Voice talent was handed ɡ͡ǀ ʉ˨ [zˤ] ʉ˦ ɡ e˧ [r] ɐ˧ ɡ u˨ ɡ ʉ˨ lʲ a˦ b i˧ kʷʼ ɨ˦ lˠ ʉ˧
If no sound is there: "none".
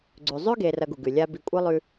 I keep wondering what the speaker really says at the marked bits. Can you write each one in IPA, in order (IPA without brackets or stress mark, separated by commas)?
zˤ, r